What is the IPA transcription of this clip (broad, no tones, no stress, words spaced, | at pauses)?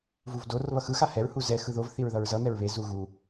vuvdor βʌxɯ xahɛɹ huzɛ xɯðov θiɹðʌɹzʌ n̪ɛɹβe zuɣu